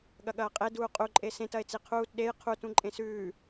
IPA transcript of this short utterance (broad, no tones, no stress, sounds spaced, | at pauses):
ɠ ɐ ɠ ɐː qʼ e d uː qʼ u ǃʼ e s ẽ t ɐ e̯ t͡s i qʰ uː t ɗ e j qʰ u t ũ ǃʼ ẽ s ʉː